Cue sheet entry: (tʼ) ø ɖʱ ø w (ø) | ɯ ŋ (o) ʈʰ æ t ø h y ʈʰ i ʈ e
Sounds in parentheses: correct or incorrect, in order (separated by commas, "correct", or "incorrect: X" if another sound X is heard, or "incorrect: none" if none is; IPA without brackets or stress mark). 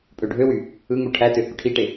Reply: incorrect: pʼ, incorrect: y, incorrect: u